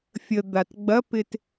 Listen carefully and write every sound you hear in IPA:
fʲ ə d̪ a t ɡ͡b ɐ p ɪ t

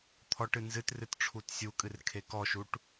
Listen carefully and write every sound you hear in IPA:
t̪ʰ ɔ ʈ ɨ n z ɨ t r ɨ t ʈ͡ʂʰ u t sʲ u kʼ ɨ r kʰ e k ɔ ʃ u ʈ

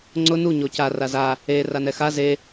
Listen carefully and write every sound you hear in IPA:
ŋ͡ǀ ʊ n u ɲ o c a r a z a | e r a n ɛ x a z e

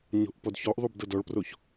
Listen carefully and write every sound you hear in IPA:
ɲ o̤ ʔ p ɔ d ç ɔ ʔ ðˤ u b d ɤ d ɔ ɭ p r o ç

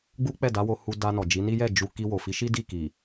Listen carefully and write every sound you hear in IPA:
ɡ͡b u˦ k͡p ɛ˦˨ d a˨˦ w o˧ h u˧ d a˧ n ɔ˨ d͡ʒ i˨˦ n i˦ j ɛ˦˨ d͡ʒ u˧ k i˧ w o˨ f i˨˦ ʃ i˦ d i˦˨ k i˨

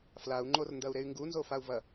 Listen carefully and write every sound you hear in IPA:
f l a u̯ ŋ͡ǃ o r n d ɐ u̯ ɾ e y̯ ŋ ɡ u n z o f a u̯ v ɐ

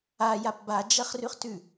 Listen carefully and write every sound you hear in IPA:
a j a p b a d͡ʒ ɐ χ r ʉ χ t ʉ

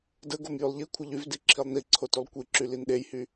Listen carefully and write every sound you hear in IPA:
d ə ɡ o m j y lˠ ʎ i kʷʰ ə ʎ y v d i ǁʰ i lˠ n i ǀʰ o t y lˠ kʷ i ǁ y l i n ɗ e j h y

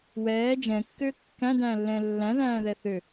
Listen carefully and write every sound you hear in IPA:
w ɛː d͡ʒ ɛ̃ kː ʏː kː æ̃ d æ̃ː lː ɛ̃ː lː æ̃ ð æ̃ː ð ɛ θ ʏ

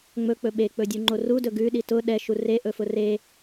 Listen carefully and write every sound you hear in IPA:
ŋ͡m ɵ k͡p ɵ ɓ e k͡p ɵ dʲ u ŋ͡ǃ o r u d ɵ ɡ ʉ ɗ i t ʊ ɗ ɛ ʃ u r e ʔ ɵ f ʊ r e

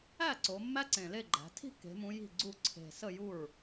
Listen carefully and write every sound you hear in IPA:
æ˥˩ ǀ o˩˧ mː æ˦˥ ǀ ẽ˨˩ l e˥˩ ɡ͡ǃ æ̤˩˧ tʰ i̤˥˩ kː e̤˩˧ m ũ˩˧ j i̤˥˩ ɡ͡ǀ u˥˩ ǀʰ e̤˨˩ s ə˥˩ j u˥˩ ɹ

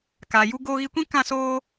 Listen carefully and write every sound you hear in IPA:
k a˨ j u˧ ɡ oː˧ ɣ i˧ kʷ ĩ˦ k ã˦ s oː˦

